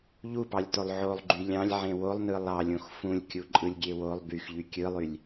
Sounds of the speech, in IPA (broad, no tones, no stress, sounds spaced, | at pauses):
ʎ u p ɑ lʲ t o lˠ ʕ o lˠ ɡ͡ǃ y lʲ ɑ̃ lʲ ʕ ẽ w o lˠ n ɯ lˠ ɑ lʲ õ x f ũ lʲ kʲ u ǃʼ ɯ lʲ ɡʲ e w o lˠ b y x ʎ y kʲ ɯ lˠ y lʲ